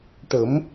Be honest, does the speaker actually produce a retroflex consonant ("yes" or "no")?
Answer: yes